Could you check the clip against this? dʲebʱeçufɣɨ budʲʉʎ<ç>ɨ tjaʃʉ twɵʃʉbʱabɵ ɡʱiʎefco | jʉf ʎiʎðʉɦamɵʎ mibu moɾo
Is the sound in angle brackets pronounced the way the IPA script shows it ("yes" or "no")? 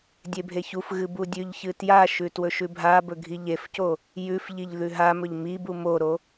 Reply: yes